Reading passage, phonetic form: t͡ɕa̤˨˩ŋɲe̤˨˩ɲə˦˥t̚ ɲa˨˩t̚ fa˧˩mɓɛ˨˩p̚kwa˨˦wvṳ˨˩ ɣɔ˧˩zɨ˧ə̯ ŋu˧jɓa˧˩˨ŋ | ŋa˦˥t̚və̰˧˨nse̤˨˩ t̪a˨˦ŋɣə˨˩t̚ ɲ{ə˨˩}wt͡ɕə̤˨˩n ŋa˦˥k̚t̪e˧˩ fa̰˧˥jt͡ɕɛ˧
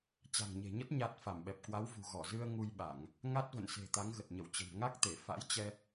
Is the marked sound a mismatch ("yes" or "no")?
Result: yes